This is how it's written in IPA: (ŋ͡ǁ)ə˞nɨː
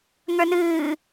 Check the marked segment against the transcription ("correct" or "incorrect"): incorrect